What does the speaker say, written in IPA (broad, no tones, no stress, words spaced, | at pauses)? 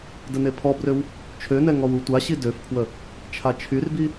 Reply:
dənepʰɔbrøw | t͡ʃʰønɛ ŋɔwutʷaɕi døfpʰwə | t͡ʃʰat͡ʃʰyrbi